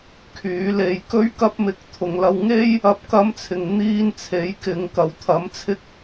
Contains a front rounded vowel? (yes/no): yes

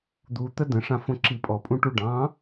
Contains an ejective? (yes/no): yes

